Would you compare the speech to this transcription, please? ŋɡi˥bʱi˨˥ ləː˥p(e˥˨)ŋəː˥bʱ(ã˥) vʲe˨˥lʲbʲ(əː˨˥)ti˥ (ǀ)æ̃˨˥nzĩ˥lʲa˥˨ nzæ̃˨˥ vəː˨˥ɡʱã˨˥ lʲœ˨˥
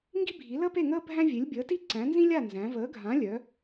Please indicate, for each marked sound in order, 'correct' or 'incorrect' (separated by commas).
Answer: correct, incorrect, correct, correct